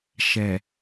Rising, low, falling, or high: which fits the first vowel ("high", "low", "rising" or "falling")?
low